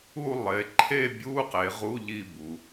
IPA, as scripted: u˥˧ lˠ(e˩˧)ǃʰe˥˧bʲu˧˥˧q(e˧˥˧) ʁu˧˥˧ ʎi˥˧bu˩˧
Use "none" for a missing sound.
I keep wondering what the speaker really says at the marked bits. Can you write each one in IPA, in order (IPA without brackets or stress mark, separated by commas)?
e˩˧, e˩˧